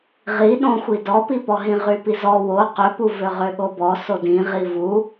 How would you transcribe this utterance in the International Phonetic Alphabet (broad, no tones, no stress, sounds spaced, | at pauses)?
ʁ i ɗ õ xʷ i d ɔ p i p ɔ ɦ ĩ ʁ y p i z ɔ w o q ø p u v ø ʁ ø ɠ o b ɔ s o d ĩ ʁ i v u